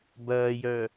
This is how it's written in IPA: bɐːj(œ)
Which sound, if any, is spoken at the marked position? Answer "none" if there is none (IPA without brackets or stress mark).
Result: œ